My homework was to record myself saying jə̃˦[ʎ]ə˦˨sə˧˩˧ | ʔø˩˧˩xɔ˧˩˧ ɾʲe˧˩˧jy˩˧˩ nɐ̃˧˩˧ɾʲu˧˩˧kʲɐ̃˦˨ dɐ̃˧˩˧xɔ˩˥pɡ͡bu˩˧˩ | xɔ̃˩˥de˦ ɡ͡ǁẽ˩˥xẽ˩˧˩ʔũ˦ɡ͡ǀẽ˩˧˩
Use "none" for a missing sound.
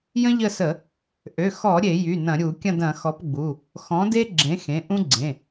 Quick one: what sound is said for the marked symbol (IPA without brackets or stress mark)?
ʎ